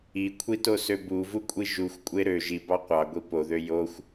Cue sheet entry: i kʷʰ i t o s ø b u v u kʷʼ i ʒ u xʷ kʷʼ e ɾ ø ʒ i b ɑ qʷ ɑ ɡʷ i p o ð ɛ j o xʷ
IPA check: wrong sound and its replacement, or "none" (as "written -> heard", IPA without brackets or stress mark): ɛ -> ø